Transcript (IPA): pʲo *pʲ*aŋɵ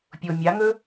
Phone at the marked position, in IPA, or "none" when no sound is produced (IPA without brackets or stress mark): mʲ